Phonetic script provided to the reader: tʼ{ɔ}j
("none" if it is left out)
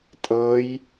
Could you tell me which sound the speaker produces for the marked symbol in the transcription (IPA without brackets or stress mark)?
ɤ